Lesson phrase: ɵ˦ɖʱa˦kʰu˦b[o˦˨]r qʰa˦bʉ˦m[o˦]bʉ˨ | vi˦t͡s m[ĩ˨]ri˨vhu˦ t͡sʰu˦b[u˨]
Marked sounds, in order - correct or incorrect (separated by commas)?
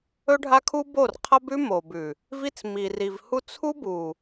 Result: correct, incorrect, incorrect, correct